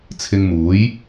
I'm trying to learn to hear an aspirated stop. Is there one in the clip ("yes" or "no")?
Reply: yes